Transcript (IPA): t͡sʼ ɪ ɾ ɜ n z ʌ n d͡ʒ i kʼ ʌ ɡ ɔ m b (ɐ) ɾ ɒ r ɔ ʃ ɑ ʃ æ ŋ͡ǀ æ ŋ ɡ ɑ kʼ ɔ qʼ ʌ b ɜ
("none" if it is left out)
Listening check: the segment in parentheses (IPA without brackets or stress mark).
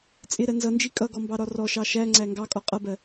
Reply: ɑ